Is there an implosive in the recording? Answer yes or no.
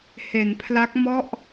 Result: no